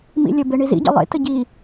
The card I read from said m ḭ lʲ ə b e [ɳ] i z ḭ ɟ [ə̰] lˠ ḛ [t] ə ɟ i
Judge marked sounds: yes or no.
yes, yes, yes

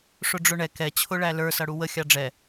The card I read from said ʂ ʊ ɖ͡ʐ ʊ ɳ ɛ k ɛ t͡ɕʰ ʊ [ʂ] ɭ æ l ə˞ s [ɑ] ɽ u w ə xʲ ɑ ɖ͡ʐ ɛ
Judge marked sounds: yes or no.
no, no

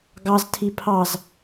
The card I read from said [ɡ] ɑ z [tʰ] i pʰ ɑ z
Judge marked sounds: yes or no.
yes, yes

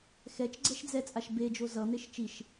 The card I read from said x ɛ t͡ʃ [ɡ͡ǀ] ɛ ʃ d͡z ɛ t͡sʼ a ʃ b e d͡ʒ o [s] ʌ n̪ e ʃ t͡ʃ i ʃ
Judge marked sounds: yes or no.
yes, no

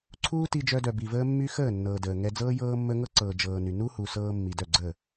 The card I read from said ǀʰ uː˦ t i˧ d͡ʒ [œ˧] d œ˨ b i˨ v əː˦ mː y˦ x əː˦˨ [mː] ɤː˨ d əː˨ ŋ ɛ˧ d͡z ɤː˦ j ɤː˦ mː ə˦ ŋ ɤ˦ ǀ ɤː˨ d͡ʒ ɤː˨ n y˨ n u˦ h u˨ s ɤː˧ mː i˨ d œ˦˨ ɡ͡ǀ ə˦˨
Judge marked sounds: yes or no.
yes, no

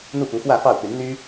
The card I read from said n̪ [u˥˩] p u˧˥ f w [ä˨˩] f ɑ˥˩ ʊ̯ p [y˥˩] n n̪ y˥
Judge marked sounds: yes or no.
yes, no, no

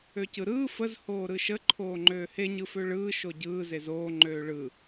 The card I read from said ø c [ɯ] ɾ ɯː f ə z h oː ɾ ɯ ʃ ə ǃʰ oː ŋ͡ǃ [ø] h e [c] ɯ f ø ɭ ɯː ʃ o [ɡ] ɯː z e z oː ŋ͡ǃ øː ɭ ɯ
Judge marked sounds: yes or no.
yes, no, no, no

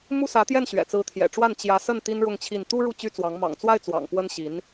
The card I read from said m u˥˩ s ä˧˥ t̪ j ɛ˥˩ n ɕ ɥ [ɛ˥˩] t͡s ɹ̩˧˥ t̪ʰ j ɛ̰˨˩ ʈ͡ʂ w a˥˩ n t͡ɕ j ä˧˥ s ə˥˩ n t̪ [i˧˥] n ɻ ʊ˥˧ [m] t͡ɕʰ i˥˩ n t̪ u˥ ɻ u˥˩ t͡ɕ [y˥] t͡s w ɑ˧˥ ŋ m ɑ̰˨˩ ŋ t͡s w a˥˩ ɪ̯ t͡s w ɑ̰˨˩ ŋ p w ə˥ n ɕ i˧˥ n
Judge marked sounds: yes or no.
no, no, no, yes

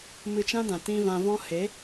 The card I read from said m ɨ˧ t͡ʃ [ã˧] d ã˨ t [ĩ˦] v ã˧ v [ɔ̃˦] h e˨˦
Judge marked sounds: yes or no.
no, no, yes

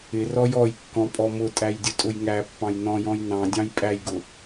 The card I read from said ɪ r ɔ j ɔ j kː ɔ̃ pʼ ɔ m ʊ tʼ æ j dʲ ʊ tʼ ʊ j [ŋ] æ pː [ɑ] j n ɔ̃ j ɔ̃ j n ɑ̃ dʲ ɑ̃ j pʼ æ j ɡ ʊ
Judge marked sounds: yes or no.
yes, no

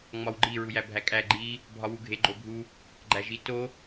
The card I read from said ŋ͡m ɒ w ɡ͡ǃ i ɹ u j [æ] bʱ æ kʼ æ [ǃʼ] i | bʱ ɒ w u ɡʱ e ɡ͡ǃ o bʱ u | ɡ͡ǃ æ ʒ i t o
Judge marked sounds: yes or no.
yes, no

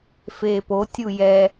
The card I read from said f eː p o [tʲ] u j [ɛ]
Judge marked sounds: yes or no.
yes, yes

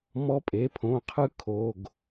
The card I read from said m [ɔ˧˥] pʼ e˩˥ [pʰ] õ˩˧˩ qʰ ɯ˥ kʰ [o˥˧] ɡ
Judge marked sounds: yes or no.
yes, yes, no

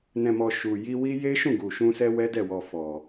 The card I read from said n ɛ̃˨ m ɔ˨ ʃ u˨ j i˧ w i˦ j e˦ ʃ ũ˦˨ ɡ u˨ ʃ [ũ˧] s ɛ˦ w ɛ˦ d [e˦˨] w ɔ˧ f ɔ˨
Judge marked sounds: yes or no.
yes, no

